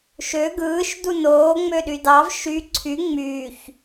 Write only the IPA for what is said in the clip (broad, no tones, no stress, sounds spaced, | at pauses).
ʃ ø ɡ ɯː ʃ d u n oː ŋ͡m ø ɗ y d ɑ v ʃ y ǀʰ y ŋ͡m yː ç